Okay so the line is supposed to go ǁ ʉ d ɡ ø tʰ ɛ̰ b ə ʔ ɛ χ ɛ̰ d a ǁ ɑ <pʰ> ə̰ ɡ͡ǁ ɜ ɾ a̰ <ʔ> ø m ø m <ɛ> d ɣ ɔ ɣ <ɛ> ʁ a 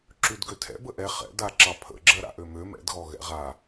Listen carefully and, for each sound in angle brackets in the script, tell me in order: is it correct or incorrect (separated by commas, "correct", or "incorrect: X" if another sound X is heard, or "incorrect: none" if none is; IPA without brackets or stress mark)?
correct, correct, incorrect: ɛ̰, incorrect: ɛ̰